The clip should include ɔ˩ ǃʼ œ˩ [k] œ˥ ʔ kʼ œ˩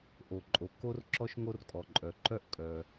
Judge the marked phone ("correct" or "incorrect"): incorrect